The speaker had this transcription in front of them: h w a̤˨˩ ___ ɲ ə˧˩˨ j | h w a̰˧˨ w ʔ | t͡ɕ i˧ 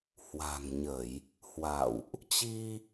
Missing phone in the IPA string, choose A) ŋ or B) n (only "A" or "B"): A